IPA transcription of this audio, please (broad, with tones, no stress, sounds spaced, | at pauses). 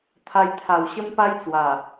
t̪ʰ a˧ j t̪ʰ a˨˩ w ɕ ə˦ m p a˦ j t͡s w a˨˩